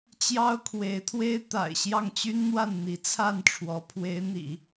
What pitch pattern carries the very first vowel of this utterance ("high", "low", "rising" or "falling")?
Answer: high